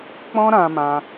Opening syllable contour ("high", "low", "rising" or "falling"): high